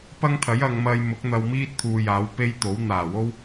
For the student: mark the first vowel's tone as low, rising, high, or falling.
high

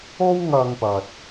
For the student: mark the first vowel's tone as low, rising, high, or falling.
high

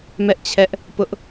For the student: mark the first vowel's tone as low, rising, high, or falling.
high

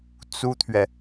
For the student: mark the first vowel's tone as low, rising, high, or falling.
high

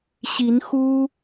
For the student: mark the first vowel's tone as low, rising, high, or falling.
rising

